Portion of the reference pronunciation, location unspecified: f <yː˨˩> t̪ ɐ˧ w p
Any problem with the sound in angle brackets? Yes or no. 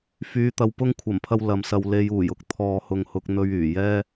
yes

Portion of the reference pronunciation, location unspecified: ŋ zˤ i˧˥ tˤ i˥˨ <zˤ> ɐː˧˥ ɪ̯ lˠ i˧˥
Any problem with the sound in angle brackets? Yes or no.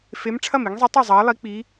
no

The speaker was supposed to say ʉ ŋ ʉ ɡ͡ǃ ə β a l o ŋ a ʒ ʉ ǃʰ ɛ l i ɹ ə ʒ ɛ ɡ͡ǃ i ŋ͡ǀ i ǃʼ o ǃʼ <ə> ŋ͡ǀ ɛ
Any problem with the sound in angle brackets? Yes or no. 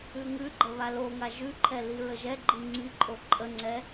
no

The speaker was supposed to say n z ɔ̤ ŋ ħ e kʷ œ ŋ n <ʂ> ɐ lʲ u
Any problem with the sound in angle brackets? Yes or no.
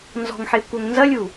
yes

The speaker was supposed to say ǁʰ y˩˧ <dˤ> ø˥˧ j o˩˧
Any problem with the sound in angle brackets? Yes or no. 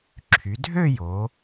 yes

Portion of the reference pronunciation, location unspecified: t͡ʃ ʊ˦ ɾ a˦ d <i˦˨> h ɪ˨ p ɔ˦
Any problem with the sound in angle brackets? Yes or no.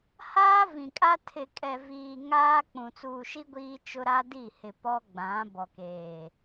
no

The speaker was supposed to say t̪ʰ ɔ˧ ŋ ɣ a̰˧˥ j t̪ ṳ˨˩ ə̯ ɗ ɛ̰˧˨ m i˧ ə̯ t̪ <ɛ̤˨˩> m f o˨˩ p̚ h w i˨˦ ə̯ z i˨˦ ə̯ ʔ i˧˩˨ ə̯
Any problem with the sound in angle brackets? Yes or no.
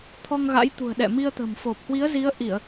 yes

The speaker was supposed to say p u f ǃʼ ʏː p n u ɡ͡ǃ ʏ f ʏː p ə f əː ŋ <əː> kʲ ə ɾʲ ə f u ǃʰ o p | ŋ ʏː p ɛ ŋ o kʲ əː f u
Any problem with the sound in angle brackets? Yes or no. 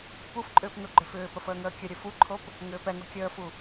no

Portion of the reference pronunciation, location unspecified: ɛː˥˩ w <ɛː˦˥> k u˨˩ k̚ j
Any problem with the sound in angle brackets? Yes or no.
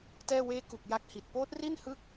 yes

